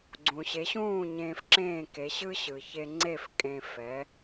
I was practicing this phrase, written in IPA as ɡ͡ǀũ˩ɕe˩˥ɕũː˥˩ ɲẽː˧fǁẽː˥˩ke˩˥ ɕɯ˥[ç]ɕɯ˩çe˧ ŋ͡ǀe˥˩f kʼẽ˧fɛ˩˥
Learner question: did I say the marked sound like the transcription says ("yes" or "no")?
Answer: no